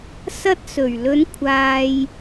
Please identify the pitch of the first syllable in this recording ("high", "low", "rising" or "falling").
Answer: high